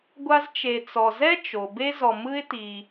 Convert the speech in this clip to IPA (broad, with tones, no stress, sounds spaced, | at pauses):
ɡʷ a˦ z t͡ʃ e˨ t͡s ɔ˨ z ɛ˥ t͡ʃ o˩ b e˦ z ɔ˨ m ɯ˥ ɪ̯ t i˨